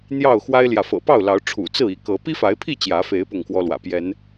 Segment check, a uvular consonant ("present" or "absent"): absent